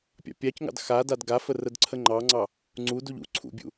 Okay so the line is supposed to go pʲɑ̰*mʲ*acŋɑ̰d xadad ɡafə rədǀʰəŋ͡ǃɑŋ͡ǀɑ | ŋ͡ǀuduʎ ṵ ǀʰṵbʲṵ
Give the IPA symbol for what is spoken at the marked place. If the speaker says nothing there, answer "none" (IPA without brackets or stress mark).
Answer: pʲ